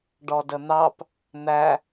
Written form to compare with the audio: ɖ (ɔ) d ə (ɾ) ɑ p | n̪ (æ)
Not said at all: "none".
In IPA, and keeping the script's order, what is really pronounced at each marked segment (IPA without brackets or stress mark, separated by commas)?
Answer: ɔ, n̪, æ